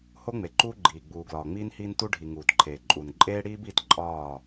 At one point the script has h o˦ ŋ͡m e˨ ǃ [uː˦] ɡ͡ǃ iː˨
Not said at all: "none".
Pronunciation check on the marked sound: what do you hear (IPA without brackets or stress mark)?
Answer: uː˦